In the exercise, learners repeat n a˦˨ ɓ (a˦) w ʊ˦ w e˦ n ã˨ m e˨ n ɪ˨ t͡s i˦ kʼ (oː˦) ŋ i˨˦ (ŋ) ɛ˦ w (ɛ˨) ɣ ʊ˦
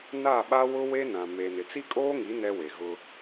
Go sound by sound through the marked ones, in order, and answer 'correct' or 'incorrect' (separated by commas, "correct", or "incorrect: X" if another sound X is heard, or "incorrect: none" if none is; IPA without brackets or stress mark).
correct, correct, incorrect: n, incorrect: e˨